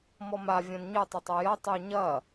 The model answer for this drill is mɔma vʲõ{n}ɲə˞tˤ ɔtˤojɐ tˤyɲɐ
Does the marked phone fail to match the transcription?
no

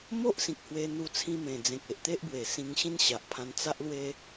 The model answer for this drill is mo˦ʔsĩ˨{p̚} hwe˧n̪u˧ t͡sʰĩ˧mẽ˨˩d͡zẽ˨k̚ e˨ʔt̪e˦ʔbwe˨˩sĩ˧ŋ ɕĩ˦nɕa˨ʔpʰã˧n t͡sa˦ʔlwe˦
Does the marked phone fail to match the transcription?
yes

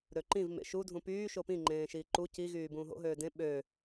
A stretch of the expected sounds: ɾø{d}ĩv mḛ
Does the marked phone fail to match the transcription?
yes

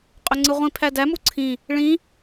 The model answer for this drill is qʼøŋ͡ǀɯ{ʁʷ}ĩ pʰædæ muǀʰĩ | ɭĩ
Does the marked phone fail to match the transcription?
no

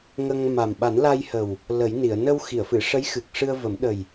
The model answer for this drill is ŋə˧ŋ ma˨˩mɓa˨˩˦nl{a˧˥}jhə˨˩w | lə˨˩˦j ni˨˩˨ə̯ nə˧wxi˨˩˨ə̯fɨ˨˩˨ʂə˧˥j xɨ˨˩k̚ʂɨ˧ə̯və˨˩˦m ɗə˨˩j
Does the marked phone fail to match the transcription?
yes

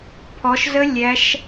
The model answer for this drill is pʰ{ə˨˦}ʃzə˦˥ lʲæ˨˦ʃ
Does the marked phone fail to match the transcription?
yes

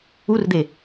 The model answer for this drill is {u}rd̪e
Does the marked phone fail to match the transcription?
no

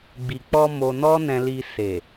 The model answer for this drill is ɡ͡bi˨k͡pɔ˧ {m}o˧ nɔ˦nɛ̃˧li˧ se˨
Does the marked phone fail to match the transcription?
no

